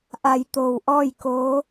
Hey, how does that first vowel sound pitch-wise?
low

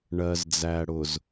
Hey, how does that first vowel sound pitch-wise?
low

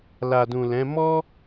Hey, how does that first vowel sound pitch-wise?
low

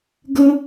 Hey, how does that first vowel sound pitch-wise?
high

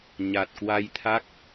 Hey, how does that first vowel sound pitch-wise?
low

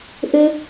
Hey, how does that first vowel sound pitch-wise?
high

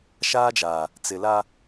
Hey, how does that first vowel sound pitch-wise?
high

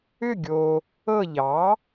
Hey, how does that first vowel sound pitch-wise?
falling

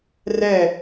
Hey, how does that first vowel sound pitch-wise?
falling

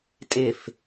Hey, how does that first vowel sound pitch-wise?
falling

